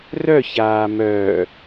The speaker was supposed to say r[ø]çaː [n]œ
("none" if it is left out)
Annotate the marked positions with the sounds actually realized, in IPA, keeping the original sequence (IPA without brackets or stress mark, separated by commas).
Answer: œ, m